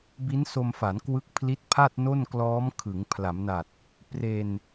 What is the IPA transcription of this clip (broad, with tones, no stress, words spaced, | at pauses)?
bi˦˥nso˧mfa˩˦n kwɯ˦˥k̚pʰli˦˥t̚pʰa˥˩t̚ no˥˩nklɔː˦˥mkʰɯ˩˦ŋ pʰla˩˦mna˨˩t̚ | pre˧n